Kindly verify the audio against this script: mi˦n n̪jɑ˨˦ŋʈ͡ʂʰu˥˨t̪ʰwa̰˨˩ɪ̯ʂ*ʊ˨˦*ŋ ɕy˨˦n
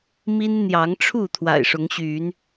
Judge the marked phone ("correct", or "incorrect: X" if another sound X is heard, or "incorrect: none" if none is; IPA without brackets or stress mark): correct